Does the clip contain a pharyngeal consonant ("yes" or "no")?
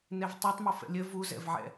yes